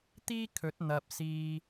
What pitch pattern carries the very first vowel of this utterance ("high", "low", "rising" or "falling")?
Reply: high